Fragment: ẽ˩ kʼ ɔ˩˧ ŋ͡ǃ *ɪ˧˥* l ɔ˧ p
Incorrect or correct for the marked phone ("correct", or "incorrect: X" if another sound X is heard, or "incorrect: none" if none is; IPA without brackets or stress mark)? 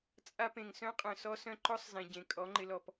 correct